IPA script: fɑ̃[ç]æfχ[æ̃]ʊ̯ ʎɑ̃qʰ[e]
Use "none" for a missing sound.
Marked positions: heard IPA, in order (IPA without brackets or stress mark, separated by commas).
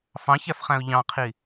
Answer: ç, æ̃, i